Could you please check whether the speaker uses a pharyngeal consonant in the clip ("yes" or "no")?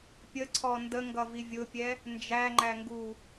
no